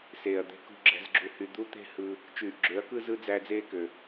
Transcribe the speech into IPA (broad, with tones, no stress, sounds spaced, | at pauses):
s eː˨ ɐ̯ d̪ e̤˧ k ṳ˧ ɡ͡ǁ æ̤˦ z ɡ͡ǁ u˧ h y˧ d̪ u˦ t̪ e̤˦ h ɯ˧ | t͡ʃ yː˨ ʔ ɡ͡ǁ ø˨˦ ɐ̯ k ɯ˦ z ɯ˦ d͡z æ˧ d͡z eː˦ k ø˨